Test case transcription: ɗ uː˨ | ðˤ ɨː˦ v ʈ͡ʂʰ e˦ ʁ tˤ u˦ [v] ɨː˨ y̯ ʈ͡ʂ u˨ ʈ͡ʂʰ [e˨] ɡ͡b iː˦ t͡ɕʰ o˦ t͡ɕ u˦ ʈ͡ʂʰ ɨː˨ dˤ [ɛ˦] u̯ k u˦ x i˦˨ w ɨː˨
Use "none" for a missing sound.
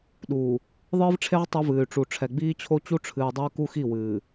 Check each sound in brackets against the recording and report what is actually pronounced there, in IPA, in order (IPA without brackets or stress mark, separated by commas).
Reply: v, ɛ˨, œ˦